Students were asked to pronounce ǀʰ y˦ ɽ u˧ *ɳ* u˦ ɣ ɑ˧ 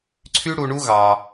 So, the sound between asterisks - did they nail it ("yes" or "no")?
yes